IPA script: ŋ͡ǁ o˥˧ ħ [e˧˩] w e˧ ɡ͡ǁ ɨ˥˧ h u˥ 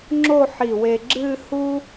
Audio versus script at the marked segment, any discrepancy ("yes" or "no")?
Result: yes